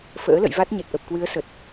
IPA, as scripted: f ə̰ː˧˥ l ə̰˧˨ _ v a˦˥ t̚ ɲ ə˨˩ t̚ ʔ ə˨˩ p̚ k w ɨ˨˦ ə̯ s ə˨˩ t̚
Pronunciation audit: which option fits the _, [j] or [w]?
j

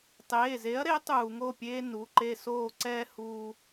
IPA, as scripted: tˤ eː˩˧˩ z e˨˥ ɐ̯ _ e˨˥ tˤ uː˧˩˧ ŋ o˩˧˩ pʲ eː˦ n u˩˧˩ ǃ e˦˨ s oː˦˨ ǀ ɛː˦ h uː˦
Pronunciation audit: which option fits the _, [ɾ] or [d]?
ɾ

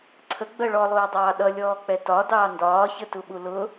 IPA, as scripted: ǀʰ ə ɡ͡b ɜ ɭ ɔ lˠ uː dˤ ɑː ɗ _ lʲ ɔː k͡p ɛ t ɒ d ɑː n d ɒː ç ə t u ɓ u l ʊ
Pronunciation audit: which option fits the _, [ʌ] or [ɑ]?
ʌ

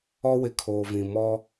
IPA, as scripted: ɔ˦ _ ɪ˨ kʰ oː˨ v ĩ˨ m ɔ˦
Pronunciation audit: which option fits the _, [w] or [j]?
w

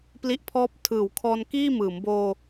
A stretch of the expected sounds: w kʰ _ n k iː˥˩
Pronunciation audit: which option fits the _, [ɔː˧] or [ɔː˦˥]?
ɔː˧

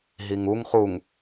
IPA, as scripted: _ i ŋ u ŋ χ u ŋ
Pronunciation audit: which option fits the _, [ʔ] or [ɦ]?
ɦ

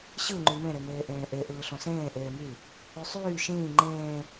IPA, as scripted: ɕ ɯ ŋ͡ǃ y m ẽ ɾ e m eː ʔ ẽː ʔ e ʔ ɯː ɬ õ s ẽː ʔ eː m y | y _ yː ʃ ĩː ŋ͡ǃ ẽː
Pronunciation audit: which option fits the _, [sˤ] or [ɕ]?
sˤ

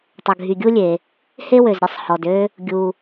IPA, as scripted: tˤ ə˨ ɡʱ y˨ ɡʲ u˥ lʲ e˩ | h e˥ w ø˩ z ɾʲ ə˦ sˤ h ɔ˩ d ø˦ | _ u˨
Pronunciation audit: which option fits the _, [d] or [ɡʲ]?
ɡʲ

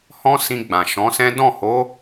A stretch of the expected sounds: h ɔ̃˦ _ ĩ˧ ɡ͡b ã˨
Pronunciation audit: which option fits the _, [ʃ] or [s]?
s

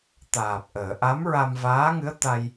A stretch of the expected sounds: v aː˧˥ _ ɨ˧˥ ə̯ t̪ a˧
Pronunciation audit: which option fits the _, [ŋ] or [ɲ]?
ŋ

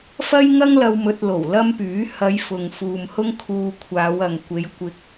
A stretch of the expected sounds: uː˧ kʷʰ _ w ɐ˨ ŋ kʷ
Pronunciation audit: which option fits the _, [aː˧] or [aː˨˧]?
aː˨˧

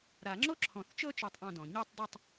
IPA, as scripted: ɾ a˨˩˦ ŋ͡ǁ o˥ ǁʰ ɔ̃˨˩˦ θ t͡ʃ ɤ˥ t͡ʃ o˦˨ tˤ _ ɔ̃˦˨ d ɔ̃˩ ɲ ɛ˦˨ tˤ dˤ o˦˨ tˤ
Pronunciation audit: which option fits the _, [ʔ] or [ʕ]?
ʔ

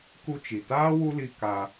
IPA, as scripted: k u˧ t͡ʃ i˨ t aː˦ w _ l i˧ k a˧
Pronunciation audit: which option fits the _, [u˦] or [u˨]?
u˦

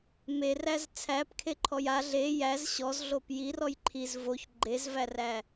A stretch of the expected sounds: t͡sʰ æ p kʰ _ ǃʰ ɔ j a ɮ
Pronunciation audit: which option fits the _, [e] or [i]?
e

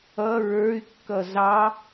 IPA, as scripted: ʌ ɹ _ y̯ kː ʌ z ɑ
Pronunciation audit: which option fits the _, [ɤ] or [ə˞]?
ə˞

